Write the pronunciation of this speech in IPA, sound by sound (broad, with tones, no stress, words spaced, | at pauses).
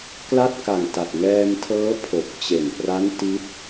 kla˥˩t̚ka˨˩ŋta˨˩t̚ ŋɛː˧mtʰɤː˦˥ pʰo˨˩k̚t͡ɕe˨˩npra˦˥n ti˦˥t̚